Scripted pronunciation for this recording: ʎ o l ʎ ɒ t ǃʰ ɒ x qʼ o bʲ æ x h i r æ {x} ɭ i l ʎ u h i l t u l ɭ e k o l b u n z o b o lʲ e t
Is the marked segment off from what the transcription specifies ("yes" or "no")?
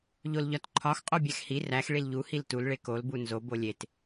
no